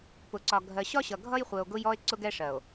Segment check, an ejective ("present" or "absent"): absent